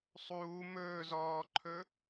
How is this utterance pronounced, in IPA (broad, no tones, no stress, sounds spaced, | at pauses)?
sˤ uː m ɵː z ɔː ǃʰ ɵ